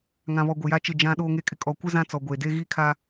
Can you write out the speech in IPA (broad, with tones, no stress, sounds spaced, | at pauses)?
ŋ ã˨ β ɔ˨ ɡʷ ɪ˨ j a˦ t͡ʃ ɪ˦˨ d͡ʒ ã˦ ɗ oː˦ ŋ e˦ kʼ ɪ˦ kʼ ɔ˨ kʷ ɪ˦ z ã˦ t͡s ɔ˨ ɡʷ e˨ d e˦ ɣ i˦ kʰ a˦